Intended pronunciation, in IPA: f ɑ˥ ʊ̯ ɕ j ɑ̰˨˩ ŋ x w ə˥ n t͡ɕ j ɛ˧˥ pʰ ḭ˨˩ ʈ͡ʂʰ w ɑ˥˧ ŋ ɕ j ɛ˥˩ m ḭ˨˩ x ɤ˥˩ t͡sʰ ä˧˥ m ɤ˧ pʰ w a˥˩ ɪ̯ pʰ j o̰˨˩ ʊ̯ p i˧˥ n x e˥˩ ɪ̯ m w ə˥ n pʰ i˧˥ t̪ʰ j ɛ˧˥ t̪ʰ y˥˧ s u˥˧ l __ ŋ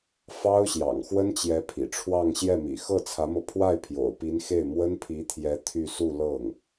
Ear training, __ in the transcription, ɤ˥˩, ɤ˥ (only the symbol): ɤ˥˩